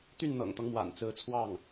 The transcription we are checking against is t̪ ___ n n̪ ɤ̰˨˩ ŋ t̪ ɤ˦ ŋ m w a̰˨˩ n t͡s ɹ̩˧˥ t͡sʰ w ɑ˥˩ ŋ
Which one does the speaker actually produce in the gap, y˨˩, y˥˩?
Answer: y˥˩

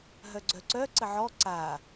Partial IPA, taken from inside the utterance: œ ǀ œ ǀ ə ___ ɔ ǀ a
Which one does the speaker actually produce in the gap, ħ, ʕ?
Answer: ʕ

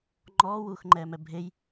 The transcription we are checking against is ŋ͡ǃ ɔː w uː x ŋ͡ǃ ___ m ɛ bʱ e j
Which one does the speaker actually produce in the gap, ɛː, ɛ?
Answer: ɛː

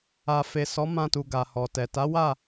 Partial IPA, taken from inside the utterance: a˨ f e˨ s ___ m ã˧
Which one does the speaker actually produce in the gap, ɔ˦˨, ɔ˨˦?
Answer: ɔ˨˦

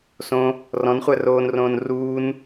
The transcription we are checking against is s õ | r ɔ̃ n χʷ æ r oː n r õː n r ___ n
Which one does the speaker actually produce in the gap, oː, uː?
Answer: uː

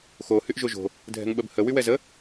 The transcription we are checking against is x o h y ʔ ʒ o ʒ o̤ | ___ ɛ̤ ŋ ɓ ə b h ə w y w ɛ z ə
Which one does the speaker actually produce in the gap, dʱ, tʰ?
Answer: dʱ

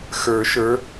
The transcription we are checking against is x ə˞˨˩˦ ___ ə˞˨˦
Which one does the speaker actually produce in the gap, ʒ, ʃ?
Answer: ʃ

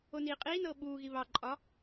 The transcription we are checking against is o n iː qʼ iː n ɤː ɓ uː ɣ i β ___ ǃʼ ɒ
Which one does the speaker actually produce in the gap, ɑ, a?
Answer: ɑ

